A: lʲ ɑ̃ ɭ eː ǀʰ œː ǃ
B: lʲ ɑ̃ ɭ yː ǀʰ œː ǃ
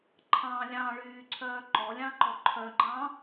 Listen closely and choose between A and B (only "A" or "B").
B